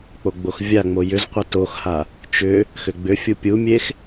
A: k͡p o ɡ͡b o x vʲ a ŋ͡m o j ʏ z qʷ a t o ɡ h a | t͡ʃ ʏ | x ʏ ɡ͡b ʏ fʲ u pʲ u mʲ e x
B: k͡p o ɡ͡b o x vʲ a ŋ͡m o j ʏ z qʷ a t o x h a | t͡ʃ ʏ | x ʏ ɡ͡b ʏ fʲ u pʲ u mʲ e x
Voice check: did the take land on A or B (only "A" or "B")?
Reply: B